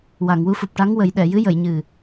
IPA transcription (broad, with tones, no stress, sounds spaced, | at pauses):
w a˨˩˨ ŋ w u˧ f u˨˩ p̚ ʈ a˧˥ ŋ w ə˨˩˦ j ɗ ɛ˨˩˨ j ɨ˧˥ j ə˨˩˨ j ɲ ɨ˨˩